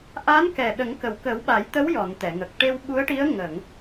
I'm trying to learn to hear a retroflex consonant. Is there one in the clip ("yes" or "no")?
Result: yes